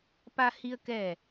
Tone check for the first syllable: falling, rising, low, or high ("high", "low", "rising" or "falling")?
high